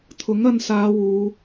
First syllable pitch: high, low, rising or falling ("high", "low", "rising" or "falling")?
rising